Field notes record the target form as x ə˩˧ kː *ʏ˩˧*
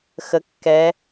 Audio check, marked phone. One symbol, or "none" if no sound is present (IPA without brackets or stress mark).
ɛ˩˧